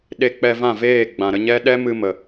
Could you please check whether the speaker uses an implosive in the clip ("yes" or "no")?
yes